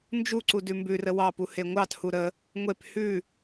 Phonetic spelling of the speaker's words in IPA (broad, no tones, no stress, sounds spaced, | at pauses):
n d͡ʒ u ǀ u d ʉ m b ʉ r ə w ɑ p u h e ŋʷ ɑ t h u ɾ ə | ŋʷ e p h ʉ